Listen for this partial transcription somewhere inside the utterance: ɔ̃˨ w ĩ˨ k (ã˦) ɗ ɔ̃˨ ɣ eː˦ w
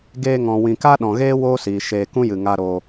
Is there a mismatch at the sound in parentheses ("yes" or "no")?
yes